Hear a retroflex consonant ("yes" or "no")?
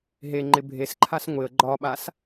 no